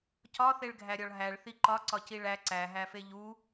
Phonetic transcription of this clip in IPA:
c ɒ θ e ɭ ɡʱ æ ɾʲ ɒ ɭ ɦ æ ɭ θ i ǃ ɒ ǀ ɒ c i ɭ æ ǀ æ ɦ æ f e ʎ u

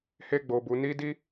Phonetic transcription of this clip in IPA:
h e˦ ɡ͡b o˧ b u˧ n i˦ d i˦

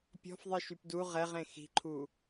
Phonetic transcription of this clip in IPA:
pʲ ɔ̤ f ðˤ i ʃ y p d u ʁ ɛ ʁ ẽ x i̤ ǃʰ u

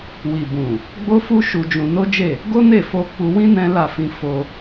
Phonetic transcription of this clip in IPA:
w i˨ b ũ˨ | ɡ͡b o˦ f u˦ ʃ u˧ d͡ʒ ũ˧ n o˦ d͡ʒ e˦˨ | ɡ o˦ n e˦˨ f o˧ k͡p u˧ w ĩ˦ n ɛ̃˦ l a˦˨ f ĩ˧ f o˧

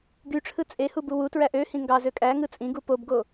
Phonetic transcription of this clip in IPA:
ɡ y ʈ͡ʂʰ ɯ t͡sʼ e h u b u w u t ɹ æ ʔ ø h ĩ ŋ ɡ ɑ z ø kʼ æ ŋ ɯ t͡sʼ ĩ ɡ u p o b ɡ o

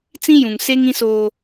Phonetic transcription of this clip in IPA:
t͡s ĩ˦ j ũ˨ ŋ s e˦ ŋ ĩ˦ s oː˦

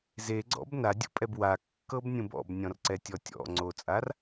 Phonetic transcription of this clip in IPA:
z e ɡ͡ǀ ɔ̰ b n a dʲ ṵ pʼ ɛ b w a kː ɤ b nʲ ũ b ɔ̰ b nʲ ɔ̃ r ǀ ɛ tʲ ɔ tʲ ɔ̰ ŋ͡ǀ o t͡sʼ a r

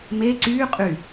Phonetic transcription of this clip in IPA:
m e ǀ yː qʼ y

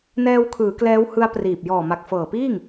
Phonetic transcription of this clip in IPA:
n ɛː˧ w kʰ ɯː˩˦ k l ɛː˦˥ w h ɯ˦˥ a̯ p r iː˨˩ p̚ j ɔː˨˩ m a˨˩ k̚ f ɤː˨˩ p iː˥˩ ŋ

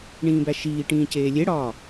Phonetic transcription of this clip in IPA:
ɳ ĩː b æ ʃ iː ʈ ĩː c eː lʲ e ɽ ɒː

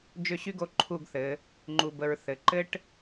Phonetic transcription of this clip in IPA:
d͡ʒ ʏ˥˧ ɕ y˥ ɡ o˥˧ ǃʰ u˥˧ ɡ θ ɘ˩˧ | ŋ͡ǃ u˧ b ə˧ ɹ θ ɘ˩˧ ǃ ɘ˥ ʈ

